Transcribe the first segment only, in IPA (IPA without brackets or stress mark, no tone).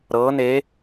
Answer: ɾ